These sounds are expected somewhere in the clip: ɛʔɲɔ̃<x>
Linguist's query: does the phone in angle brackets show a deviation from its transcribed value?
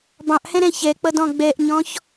yes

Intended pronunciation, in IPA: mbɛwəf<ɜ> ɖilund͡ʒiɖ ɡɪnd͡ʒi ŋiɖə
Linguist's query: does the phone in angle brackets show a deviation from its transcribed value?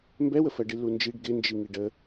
no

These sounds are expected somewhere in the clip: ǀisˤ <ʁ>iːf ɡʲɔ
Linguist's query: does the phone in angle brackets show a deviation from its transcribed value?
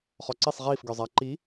no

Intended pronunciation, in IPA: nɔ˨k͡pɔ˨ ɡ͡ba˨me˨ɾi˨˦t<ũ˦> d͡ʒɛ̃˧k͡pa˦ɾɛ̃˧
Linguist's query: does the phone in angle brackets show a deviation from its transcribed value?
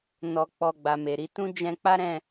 no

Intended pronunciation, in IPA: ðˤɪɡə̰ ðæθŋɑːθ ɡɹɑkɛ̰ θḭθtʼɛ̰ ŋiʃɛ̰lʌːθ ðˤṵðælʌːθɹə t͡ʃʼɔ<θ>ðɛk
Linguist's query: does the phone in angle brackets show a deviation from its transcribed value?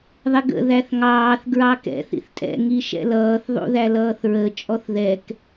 no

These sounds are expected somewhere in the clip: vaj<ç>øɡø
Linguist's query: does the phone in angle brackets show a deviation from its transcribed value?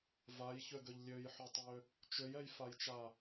no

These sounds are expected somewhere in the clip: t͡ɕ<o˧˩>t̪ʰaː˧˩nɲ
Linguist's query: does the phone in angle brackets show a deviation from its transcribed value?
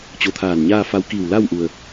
no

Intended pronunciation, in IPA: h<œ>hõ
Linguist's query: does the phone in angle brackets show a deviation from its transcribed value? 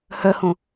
no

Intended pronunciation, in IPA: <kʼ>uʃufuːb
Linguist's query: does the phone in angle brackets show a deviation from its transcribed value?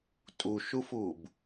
yes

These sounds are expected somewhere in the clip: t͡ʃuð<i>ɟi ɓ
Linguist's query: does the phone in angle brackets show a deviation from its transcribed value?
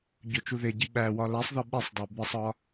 yes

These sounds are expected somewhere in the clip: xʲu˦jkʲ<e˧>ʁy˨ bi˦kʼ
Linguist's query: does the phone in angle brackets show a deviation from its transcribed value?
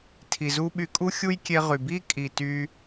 no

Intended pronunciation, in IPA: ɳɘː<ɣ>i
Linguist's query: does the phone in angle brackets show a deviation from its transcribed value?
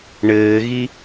no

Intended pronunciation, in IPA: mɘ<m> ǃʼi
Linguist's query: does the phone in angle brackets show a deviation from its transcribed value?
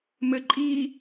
yes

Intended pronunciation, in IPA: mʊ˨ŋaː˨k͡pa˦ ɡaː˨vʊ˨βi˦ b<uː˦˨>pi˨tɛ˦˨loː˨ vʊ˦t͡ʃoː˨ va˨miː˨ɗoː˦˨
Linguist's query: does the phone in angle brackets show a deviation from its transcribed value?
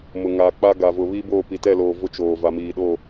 yes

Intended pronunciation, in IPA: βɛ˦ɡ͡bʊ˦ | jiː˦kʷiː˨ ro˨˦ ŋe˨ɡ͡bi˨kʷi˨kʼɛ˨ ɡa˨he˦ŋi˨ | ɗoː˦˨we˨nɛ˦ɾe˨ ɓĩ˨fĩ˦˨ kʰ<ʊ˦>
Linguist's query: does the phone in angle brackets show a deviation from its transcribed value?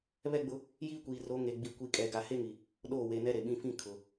yes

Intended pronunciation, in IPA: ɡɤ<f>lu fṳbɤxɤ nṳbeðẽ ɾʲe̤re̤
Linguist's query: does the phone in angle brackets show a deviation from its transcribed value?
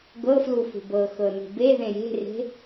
no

